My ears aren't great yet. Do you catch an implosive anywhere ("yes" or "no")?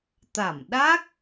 yes